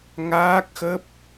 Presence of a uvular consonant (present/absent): absent